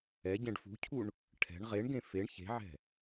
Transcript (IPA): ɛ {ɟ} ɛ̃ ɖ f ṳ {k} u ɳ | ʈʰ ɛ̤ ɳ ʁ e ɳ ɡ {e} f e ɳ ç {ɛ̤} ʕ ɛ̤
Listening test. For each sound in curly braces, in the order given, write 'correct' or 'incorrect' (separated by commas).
correct, incorrect, incorrect, incorrect